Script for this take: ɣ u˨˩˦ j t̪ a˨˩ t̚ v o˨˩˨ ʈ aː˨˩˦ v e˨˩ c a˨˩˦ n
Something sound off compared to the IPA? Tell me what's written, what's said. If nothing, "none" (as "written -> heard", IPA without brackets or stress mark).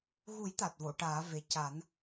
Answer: none